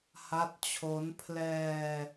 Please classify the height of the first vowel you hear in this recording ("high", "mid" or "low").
low